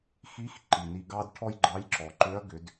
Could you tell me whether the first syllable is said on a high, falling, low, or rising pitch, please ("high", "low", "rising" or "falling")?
rising